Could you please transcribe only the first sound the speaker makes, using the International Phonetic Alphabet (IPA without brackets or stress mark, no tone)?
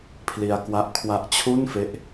pʰ